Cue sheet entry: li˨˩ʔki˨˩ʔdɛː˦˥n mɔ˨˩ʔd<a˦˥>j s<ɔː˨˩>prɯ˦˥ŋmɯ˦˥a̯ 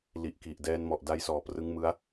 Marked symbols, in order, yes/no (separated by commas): yes, yes